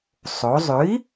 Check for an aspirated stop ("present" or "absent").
absent